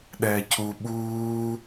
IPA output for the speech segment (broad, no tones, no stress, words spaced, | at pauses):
ɗɛːcʰu ɓuː